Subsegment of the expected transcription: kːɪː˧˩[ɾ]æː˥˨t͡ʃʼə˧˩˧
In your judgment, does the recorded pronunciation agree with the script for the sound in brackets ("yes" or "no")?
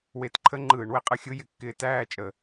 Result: no